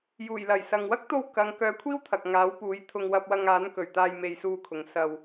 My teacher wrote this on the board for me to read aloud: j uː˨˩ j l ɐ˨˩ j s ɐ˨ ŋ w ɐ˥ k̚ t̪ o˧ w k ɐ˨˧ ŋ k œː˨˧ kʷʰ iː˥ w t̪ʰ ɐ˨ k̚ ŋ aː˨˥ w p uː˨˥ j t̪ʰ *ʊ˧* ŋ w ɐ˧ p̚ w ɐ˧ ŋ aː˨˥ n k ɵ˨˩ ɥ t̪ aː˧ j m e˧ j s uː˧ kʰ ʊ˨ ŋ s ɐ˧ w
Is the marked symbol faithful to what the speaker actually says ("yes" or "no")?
yes